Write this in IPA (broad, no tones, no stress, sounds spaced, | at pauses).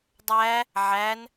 dˤ æ | ʕ æ n